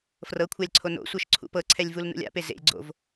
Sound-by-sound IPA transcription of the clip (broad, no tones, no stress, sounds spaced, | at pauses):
f r ɤ kʷʰ a lʲ ǀʰ o n o̰ sʷ ɤ ʃ ǀʰ ṵ p ɤ ǀʰ ɛ lʲ v u l n ṵ lʲ a̰ p e z ḛ lʲ ɡ͡ǀ o̰ v